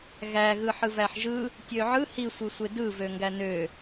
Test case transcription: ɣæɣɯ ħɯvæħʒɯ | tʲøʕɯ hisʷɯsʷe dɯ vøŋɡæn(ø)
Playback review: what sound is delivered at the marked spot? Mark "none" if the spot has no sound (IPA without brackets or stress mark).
ø